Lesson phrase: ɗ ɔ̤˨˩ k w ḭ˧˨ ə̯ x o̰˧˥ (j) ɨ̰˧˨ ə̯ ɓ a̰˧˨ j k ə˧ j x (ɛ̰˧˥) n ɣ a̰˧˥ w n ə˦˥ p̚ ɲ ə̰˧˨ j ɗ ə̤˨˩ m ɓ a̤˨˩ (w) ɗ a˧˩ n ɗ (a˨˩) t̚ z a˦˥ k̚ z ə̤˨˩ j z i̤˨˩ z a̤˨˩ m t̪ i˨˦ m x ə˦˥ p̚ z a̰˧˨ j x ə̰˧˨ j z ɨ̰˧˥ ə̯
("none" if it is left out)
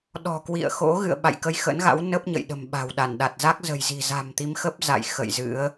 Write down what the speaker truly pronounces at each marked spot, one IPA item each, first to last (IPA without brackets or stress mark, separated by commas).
ɣ, ə̰˧˥, w, a˨˩